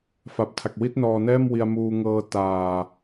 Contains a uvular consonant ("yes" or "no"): no